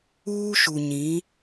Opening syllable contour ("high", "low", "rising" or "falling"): high